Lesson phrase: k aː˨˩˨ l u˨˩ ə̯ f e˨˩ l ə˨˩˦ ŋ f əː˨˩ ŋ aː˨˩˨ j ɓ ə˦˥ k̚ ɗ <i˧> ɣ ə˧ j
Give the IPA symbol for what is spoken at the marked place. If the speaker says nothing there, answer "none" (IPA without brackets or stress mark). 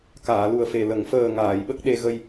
e˧